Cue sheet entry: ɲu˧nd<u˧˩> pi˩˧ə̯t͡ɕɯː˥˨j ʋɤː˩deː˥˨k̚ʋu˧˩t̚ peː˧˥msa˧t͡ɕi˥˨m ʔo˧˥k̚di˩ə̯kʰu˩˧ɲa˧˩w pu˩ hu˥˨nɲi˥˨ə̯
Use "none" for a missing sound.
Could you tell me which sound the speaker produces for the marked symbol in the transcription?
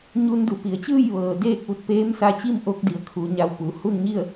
u˩˧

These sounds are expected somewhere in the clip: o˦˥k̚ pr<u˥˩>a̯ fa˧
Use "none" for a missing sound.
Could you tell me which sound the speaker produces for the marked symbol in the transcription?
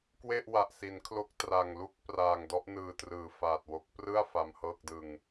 ɯ˥˩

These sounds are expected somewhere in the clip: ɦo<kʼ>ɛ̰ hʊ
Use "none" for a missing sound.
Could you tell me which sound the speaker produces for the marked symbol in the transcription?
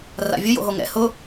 ŋ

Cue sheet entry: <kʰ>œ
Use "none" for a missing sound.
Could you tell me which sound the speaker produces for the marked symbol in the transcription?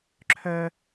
ǁʰ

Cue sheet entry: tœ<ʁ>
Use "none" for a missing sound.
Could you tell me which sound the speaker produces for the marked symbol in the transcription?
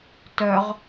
ʁ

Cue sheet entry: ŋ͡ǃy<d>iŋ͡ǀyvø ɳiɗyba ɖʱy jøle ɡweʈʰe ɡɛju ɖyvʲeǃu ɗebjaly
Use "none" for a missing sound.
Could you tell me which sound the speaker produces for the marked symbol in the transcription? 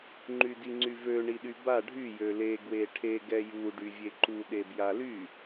d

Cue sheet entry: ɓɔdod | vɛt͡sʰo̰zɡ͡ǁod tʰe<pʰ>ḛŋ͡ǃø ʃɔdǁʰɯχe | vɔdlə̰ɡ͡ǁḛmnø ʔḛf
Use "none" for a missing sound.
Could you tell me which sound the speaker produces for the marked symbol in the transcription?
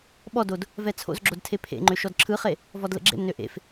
pʰ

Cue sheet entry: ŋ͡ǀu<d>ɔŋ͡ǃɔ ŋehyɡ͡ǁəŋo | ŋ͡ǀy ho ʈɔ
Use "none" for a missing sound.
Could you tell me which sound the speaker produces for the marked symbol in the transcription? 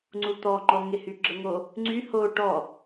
t̪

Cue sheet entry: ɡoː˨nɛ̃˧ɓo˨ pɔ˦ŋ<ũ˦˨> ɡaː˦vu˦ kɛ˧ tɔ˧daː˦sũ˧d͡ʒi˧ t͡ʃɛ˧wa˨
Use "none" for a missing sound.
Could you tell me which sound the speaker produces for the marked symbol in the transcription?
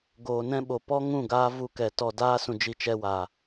ũ˦˨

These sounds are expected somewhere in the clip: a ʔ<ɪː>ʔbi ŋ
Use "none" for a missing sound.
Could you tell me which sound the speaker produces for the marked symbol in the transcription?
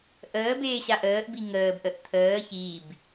əː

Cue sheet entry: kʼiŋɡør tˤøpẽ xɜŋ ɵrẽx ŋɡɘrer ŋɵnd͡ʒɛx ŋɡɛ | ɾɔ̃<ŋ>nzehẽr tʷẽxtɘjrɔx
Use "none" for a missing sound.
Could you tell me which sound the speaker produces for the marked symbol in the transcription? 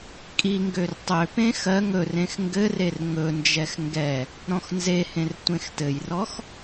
x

